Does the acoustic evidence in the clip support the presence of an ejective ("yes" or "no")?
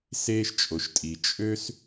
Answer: yes